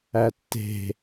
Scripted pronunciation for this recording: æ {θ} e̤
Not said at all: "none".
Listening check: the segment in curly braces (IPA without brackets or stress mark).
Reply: tː